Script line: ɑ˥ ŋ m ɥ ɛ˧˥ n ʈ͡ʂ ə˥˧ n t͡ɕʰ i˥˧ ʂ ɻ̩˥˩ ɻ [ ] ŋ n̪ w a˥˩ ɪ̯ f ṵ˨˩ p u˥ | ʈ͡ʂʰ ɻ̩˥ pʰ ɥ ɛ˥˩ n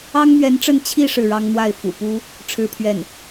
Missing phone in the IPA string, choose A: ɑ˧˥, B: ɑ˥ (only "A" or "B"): B